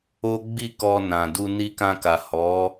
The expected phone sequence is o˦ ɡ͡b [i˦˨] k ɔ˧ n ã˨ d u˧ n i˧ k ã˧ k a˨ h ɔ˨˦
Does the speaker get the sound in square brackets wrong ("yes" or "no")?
no